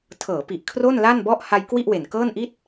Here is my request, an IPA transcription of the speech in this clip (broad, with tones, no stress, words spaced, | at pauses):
tʰɤː˩˦pi˨˩ʔ kʰro˥˩nla˥˩nbɔ˥˩ʔ ha˧jkwi˥˩ʔwe˨˩nkɤː˥˩n ʔi˥˩t̚